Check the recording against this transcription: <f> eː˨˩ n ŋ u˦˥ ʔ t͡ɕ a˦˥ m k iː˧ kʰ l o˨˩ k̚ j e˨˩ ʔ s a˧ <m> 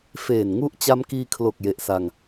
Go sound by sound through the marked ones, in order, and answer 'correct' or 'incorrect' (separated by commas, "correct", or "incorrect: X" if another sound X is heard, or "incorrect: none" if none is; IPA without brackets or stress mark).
correct, incorrect: ŋ